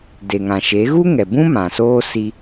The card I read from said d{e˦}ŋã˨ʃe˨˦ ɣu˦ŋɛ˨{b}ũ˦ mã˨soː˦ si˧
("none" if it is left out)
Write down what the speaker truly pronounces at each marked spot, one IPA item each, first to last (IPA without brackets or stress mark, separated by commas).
e˨, b